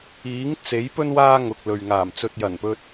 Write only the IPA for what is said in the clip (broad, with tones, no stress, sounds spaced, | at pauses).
iː˨˥ ŋ t͡s e˨˥ j p ɵ˥ n w aː˥ ŋ ʊ˨ k̚ l ɵ˨ ɥ ŋ aː˨˩ m t͡s ɵ˨ t̚ j ɐ˨˩ n p ɵ˧ t̚